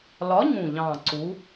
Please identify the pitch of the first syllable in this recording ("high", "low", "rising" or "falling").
rising